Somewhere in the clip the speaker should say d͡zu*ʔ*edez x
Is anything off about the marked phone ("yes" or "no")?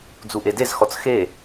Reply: no